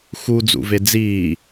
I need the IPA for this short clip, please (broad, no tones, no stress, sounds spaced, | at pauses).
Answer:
x u d͡z ṵ v e d͡z iː